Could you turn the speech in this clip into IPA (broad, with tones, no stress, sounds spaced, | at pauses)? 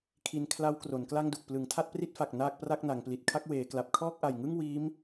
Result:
kʰ i˧ n kʰ l a˦˥ w k r o˩˦ n k l a˥˩ ŋ d u˨˩ k̚ p l ɯ˩˦ ŋ tʰ a˥˩ t̚ p r i˥˩ t̚ f a˨˩ k̚ n aː˥˩ k̚ p r a˥˩ k̚ n a˩˦ ŋ p l i˨˩ t̚ kʰ a˥˩ k̚ w eː˩˦ k l a˨˩ p̚ kʰ ɔː˥˩ k̚ ʔ a˨˩ j ŋ ɯ˥˩ ŋ w iː˦˥ m